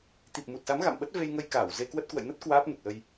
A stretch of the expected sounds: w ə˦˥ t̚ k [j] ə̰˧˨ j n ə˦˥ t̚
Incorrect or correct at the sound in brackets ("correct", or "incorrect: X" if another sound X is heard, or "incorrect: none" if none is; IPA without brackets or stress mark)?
incorrect: w